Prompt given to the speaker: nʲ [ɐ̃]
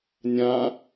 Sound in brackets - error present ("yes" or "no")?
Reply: yes